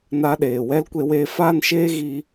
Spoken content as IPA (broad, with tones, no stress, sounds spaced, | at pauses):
n a˦ ɗ eː˨ w ɛ˦ l kʷ e˧ w eː˧ f aː˦ n ʃ eː˦ ɣ i˧